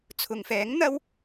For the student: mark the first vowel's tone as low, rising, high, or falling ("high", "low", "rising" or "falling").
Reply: low